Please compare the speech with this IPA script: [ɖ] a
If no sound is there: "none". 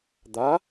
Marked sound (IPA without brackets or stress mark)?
d̪